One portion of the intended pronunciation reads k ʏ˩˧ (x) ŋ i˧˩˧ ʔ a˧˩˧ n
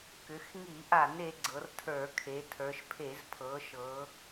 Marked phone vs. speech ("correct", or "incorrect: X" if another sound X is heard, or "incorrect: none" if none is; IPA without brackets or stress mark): correct